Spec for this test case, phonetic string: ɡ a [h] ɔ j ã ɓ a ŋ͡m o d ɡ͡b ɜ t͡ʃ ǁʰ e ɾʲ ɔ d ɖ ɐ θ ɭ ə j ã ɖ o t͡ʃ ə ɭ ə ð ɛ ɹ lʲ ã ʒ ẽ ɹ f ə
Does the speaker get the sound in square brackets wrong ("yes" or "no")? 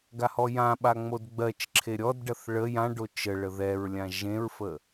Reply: no